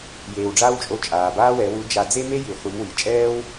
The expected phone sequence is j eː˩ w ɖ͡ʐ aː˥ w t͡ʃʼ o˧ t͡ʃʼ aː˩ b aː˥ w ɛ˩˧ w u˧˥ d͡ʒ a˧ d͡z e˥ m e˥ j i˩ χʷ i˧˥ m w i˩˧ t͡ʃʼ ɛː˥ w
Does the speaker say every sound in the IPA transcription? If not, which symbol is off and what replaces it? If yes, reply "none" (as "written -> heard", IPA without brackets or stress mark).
none